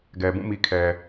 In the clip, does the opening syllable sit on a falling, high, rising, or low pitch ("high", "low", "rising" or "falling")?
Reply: low